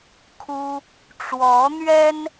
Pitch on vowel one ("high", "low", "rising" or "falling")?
high